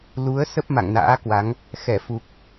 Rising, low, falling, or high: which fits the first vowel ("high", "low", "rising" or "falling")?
rising